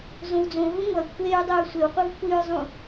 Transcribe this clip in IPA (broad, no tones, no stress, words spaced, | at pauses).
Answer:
zõwd͡zõɦũ ŋʷɐ kʷʰeɹ dˤoɹsʷewqʷɨv kʷʰiɹzˤũ